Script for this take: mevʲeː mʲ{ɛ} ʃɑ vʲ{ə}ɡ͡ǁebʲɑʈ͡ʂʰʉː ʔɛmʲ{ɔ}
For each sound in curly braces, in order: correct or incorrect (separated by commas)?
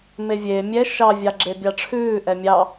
correct, incorrect, incorrect